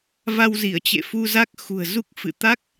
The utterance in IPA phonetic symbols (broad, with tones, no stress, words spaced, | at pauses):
va˧wzi˧˩ə̯t͡ɕḛ˧˨ fu˧za˦˥k̚xṳ˨˩ə̯zu˦˥k̚ fɨ̰˧˨ t̪a˦˥k̚